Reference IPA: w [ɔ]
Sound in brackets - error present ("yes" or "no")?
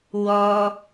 no